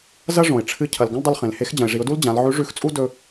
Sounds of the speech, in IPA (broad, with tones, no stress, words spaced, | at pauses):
zɐ˥ ʐõ˩ɪ̯ʈ͡ʂʰɨ˧ cʰɐ˩lɡɐ̃˥ldˤɨ˧l χẽ˩lhe˧˥x d͡ʑɐ̃˩ɪ̯ʐi˩˧ʊ̯du˥l d͡ʑã˩˧l ʕʉ˧˥ʐʉ˧˥xt͡sʼu˥ dɵ˧